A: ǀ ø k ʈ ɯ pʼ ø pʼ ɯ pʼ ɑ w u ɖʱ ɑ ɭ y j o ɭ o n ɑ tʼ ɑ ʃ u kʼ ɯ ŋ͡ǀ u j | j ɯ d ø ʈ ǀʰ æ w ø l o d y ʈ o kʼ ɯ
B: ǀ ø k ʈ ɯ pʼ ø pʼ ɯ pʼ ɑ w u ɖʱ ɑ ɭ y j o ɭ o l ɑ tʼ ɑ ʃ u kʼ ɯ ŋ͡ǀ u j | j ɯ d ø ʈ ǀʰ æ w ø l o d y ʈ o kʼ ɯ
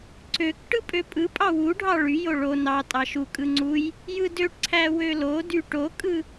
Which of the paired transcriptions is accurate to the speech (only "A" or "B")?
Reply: A